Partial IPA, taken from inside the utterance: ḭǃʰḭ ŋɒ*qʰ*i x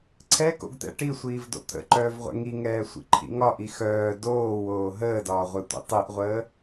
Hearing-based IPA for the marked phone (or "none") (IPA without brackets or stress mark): ʔ